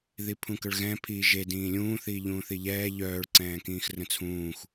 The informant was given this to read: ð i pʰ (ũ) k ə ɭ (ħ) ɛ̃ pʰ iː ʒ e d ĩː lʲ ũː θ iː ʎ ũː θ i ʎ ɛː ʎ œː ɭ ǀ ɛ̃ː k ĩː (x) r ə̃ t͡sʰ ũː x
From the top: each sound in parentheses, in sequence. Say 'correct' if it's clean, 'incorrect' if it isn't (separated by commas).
correct, incorrect, correct